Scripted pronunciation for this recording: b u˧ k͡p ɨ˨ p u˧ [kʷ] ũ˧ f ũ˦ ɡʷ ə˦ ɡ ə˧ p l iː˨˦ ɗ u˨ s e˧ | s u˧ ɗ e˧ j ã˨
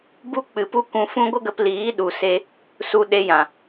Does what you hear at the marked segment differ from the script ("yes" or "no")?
no